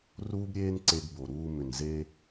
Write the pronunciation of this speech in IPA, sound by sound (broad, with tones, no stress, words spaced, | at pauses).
ruː˦bɾʲeː˦n ǀe˧ɡ bo˨ɾuː˧ mʏ˨nze˧